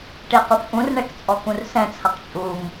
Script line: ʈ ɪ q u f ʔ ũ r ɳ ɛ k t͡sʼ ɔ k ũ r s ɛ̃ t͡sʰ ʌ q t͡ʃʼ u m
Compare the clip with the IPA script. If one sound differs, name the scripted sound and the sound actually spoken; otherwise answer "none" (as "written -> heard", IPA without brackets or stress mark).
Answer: none